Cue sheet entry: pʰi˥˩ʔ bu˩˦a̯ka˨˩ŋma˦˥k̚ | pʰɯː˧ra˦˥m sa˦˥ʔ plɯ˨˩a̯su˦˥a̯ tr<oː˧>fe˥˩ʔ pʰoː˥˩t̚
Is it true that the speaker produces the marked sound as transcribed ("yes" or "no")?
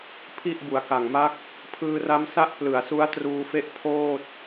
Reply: no